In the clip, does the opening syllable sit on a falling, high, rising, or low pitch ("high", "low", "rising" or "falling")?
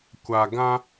low